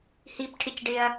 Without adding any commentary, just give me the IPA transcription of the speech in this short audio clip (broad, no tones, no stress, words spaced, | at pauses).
hipʈʰɪcɖɪɐ̯